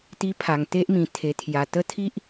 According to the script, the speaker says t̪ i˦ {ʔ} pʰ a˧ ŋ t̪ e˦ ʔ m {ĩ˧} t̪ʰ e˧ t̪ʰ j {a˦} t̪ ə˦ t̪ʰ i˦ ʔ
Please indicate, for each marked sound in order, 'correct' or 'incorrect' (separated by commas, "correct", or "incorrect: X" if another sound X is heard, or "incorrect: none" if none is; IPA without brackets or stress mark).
incorrect: none, correct, incorrect: a˧